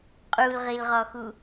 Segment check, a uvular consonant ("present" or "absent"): present